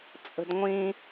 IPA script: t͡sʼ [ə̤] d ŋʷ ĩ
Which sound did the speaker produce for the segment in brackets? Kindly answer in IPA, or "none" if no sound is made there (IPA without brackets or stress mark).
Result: ə̤